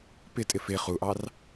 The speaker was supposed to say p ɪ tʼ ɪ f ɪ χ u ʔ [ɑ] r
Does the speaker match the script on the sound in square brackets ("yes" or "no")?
yes